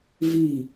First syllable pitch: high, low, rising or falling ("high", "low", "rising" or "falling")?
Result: falling